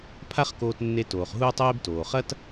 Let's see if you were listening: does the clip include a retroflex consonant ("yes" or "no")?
no